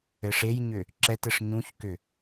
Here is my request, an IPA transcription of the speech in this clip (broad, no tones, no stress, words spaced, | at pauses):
ɘʂejɲʏ | ǁɛtɘʂ ɲũçkʏ